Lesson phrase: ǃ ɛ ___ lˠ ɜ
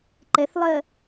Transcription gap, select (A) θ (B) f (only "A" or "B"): A